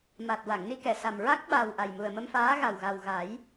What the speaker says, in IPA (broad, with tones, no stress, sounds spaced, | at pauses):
m a˨˩ t̚ w a˨˩˨ ŋ n i˧ k ɛ˨˩˨ s a˨˩ m ɹ a˦˥ k̚ ɓ a˨˩ w ʔ a˨˩ j m u˨˩ ə̯ m ə˧ m f aː˧˥ ɣ a˨˩ w ɣ a˨˩ w ɣ a˨˩˦ j